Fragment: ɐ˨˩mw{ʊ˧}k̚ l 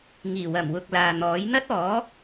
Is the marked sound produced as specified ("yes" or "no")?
no